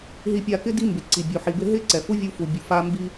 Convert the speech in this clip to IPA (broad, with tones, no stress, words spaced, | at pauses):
ɦi˧pʲa˧kɪ˦ di˦mbɪ˨ ǀi˨bʲu˨ħi˨bɪ˧ ɦɪ˧ ǀɛ˨fu˦vʲu˧fu˨ bʲu˨fa˧ mbi˧